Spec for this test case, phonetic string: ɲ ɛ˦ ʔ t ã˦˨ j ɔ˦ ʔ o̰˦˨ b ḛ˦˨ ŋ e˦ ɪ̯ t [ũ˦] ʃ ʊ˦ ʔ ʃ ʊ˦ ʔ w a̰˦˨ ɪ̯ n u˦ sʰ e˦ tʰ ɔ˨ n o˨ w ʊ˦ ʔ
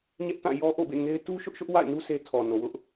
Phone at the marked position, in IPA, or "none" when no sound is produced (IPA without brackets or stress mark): u˦